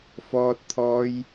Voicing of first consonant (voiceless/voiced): voiceless